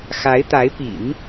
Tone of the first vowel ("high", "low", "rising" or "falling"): rising